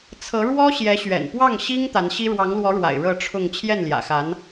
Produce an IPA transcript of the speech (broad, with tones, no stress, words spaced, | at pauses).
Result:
t͡sʰɤ˧˥ɻwɔ˥ ɕjɛ˧˥ɕɥɛ̰˨˩npwɑ˥˩ŋ ɕi˥ŋ t̪a˧˥nɕi˥ ɻwɑ˧˥ŋlwɔ˧˥ɻwa̰˨˩ɪ̯ ɻɤ˥˧ʈ͡ʂʰʊ˥˧ŋ t͡ɕʰjɛ˥˩nljä̰˨˩xa˧˥n